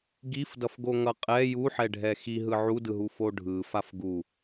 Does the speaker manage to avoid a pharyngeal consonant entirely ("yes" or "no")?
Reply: no